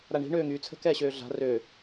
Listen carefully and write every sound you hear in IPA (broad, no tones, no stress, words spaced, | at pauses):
ɾaɳi̤ ɳøːŋyːt͡sʰə̤ kɛːɕøːɮa̤ rø